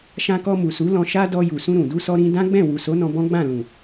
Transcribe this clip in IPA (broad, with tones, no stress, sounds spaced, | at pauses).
ʃ ã˧ k ɔ˧ m u˨ s u˨˦ l ɔ̃˧ ʃ a˦ d ɔ˧ j u˨ s ũ˧ ɾ ũ˨ d u˧ s ɔ˧ ɾ ĩ˧ d ã˦ ɡ͡b ɛ̃˦˨ w u˨ s o˨˦ n ɔ̃˧ b ɔ̃˦ ɡ͡b ã˦˨ l ũ˨